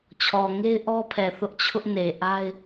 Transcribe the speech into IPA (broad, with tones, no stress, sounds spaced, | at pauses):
t͡ɕʰ ɔ˨ ŋ e˦ ɪ̯ ʔ ɔ˦ pʰ ɛ˨ θ ʊ˦ ʔ t͡ɕʰ ʊ˦ ʔ n e˨ ʔ a˦ ɪ̯